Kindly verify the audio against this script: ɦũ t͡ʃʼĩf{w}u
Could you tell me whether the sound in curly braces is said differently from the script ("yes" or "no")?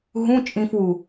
no